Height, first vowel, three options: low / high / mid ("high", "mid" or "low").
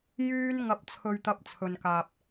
high